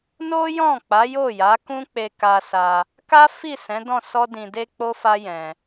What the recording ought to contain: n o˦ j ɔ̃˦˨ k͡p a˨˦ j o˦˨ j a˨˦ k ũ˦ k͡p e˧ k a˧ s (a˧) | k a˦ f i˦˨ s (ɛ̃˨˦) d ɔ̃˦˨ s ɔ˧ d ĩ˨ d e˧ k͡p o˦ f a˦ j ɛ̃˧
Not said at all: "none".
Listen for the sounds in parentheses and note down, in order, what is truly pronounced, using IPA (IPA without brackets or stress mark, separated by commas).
a˧, ɛ̃˨˦